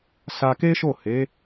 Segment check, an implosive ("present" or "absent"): absent